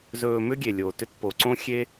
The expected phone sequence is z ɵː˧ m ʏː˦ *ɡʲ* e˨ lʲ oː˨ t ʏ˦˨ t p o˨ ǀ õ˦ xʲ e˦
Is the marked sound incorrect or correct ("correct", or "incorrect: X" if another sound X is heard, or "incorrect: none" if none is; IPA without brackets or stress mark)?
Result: correct